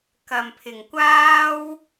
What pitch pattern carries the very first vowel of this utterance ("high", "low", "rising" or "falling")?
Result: low